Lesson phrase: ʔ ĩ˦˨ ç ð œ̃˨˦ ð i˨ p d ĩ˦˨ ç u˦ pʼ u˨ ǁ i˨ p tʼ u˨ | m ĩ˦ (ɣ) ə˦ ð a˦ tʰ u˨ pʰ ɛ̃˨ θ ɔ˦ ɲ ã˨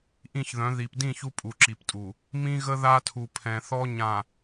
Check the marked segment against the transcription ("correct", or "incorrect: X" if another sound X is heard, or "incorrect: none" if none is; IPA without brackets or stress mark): correct